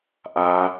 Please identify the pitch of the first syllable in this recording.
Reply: high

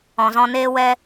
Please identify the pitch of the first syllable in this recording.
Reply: low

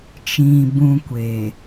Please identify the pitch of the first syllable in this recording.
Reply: low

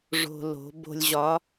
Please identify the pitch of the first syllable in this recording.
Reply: low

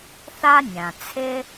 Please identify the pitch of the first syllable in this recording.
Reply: high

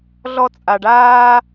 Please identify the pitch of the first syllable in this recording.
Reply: high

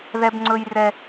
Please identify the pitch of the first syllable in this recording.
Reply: high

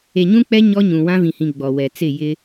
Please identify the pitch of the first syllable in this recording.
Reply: low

